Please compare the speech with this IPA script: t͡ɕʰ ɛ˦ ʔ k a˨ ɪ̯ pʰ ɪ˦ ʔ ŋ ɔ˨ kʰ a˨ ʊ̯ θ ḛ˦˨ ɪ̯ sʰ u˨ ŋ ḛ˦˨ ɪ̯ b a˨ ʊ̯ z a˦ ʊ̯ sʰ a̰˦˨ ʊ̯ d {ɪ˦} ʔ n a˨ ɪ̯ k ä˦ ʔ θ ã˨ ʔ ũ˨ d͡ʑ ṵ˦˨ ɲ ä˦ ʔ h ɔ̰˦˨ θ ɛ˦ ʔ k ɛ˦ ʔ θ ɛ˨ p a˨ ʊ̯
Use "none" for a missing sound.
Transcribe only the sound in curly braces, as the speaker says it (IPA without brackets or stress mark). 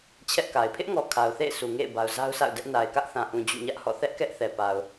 ɛ˦